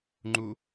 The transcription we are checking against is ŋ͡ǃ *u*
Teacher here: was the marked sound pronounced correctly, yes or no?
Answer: yes